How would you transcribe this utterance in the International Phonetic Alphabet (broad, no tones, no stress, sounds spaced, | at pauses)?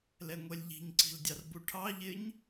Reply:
l ɛ ŋʷ ɛ lʲ ʎ i̤ ɲ ǀ i̤ l dʲ ɑ r b u ʈʰ ɑ ʎ ɪ ɲ